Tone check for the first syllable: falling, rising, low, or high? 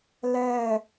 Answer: low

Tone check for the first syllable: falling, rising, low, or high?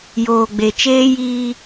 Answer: low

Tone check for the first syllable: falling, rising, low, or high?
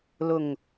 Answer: low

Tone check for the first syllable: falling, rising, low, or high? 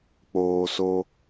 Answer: low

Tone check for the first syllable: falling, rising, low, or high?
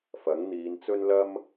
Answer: rising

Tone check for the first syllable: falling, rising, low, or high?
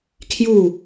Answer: falling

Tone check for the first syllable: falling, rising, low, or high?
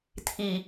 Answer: low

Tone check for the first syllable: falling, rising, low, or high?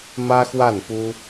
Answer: high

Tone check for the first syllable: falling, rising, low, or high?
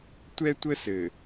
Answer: high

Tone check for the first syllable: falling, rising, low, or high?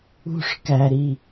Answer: falling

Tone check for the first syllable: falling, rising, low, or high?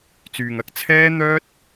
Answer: low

